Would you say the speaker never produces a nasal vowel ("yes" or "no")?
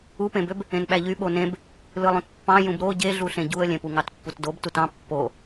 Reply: no